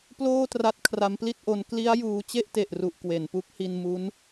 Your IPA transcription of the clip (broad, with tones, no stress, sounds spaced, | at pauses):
p l oː˥˩ t r a˦˥ t̚ kʰ r a˦˥ m p l i˥˩ t̚ ʔ o˦˥ n k l i˦˥ a̯ j uː˦˥ t͡ɕ e˥˩ ʔ t e˨˩ ʔ r u˨˩ ʔ k w e˩˦ n p u˦˥ k̚ h i˧ n m u˦˥ n